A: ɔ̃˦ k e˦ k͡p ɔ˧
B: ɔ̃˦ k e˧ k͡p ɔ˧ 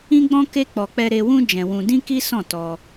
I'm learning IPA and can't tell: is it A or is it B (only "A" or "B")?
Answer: A